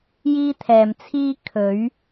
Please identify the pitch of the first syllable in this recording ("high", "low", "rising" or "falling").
high